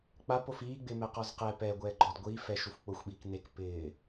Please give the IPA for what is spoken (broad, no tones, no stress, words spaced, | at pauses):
k͡pap ofiːɡ͡bɪːmɛ qɔzqɛ pɛ ɡʷɛːɡ͡ǃɔd ɡʷiː fɛʃuf k͡pʊxʷɓiːk nek pɪː